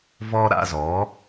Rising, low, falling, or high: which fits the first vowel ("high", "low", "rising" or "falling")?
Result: high